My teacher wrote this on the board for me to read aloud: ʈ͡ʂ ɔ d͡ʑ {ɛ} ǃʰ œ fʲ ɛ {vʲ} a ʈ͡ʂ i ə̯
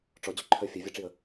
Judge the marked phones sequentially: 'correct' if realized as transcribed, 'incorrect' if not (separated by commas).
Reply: incorrect, correct